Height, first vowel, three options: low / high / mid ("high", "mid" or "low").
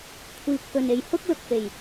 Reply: high